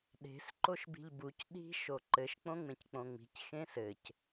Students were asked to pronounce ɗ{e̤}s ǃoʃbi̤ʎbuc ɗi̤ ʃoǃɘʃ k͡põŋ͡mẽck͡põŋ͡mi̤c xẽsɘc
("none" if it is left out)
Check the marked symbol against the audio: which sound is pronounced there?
e̤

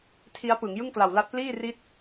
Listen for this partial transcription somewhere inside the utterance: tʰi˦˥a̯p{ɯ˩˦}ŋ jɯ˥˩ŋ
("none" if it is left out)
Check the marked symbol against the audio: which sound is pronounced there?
ɯ˩˦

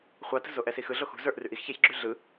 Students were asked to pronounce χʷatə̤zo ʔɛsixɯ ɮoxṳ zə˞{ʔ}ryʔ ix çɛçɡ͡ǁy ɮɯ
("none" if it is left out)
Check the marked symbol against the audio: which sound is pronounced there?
ʔ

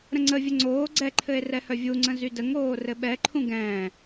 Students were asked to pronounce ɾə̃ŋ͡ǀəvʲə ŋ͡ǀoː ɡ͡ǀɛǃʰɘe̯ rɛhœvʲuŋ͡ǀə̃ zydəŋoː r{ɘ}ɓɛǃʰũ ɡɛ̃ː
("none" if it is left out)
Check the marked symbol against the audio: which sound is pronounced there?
ɘ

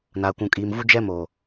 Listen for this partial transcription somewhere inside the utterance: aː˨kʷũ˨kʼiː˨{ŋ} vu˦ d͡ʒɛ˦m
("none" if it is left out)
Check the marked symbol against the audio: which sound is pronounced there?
m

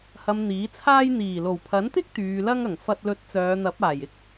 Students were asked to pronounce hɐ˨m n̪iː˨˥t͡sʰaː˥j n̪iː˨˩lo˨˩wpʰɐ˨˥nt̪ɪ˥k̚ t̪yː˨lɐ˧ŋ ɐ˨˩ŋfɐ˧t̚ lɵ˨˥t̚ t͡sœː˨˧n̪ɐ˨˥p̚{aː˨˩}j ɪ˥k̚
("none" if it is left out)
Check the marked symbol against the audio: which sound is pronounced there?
aː˨˩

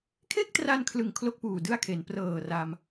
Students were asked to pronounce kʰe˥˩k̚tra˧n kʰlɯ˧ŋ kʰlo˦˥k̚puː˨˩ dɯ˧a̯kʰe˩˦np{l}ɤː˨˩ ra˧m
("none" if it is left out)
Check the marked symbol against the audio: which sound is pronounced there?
r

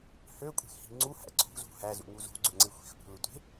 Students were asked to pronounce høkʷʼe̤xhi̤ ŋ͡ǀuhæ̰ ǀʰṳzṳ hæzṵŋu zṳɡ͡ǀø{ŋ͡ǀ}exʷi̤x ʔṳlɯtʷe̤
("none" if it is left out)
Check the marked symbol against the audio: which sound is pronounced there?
ŋ͡ǀ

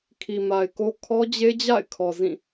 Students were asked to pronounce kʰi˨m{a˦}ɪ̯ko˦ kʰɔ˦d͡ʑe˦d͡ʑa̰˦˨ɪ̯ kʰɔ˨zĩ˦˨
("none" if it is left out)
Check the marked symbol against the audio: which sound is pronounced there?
a˨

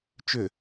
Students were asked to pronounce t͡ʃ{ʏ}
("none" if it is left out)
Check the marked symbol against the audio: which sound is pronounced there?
ʏ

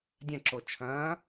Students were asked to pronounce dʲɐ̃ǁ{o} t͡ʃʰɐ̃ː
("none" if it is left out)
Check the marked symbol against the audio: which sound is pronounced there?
o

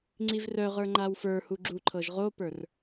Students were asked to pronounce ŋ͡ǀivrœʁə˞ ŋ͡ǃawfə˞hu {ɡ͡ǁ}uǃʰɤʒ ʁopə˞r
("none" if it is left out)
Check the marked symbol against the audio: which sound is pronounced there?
ɡ͡ǁ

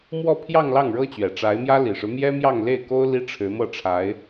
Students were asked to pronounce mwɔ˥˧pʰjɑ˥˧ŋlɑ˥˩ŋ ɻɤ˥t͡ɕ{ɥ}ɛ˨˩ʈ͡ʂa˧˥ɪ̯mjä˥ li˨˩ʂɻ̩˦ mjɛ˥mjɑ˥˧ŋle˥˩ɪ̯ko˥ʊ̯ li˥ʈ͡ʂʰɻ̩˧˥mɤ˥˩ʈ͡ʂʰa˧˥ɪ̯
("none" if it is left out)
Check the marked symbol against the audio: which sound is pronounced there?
ɥ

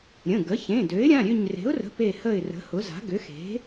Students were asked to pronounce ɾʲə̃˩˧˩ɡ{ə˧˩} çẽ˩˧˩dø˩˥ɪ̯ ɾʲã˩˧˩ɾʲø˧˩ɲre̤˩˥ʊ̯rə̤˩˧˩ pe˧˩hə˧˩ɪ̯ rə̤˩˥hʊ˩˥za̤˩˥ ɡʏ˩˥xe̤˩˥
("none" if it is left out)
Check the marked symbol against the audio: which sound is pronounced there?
ə˩˥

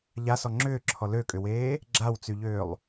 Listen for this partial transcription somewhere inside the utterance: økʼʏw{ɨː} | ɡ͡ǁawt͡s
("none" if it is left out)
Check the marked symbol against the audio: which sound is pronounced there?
eː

